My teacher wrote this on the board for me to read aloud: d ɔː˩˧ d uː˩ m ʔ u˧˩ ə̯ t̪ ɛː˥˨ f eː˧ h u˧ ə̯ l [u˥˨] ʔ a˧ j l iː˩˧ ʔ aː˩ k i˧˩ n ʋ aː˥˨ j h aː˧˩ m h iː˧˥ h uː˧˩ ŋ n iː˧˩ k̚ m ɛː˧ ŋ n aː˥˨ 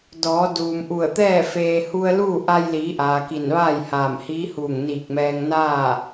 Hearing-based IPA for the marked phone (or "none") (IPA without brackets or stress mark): uː˥˨